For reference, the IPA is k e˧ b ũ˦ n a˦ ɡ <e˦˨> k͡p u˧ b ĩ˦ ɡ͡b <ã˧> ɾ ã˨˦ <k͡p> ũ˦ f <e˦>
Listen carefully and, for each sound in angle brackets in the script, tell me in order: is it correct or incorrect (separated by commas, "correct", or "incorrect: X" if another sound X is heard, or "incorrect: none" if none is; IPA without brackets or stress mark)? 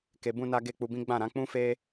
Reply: correct, incorrect: ã˦˨, correct, correct